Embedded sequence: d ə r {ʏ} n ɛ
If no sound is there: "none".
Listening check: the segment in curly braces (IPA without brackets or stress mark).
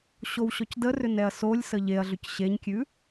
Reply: ʏ